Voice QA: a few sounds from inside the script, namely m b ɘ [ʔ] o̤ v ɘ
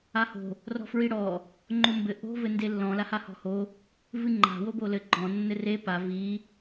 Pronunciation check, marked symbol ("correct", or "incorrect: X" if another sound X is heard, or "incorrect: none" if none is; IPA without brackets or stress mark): correct